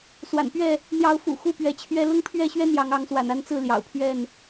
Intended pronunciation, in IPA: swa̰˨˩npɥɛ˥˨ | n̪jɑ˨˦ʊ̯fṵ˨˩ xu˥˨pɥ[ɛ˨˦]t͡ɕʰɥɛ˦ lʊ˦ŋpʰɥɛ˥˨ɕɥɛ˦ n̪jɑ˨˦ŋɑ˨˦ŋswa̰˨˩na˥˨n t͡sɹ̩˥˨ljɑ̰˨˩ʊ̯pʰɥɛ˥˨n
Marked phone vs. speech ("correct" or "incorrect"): correct